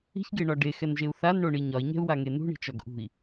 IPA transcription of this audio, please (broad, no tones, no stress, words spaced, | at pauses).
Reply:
i̤çɡeɳɒ ɖexɛnʒeu̯ θanɳoɳi ɲɒi̯ɲɛ̤u̯waŋe nṳɳi̤t͡ʃɒɡ ʔṳi̯